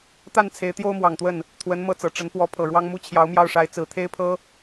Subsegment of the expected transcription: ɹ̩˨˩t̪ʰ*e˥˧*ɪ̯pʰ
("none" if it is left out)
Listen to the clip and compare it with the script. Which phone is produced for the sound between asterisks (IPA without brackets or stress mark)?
e˥